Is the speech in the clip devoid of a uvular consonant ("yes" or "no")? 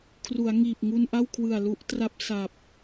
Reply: yes